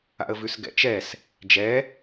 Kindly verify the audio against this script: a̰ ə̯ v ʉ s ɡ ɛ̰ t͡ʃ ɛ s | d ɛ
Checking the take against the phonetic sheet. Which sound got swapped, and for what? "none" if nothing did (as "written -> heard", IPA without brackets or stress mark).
d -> d͡ʒ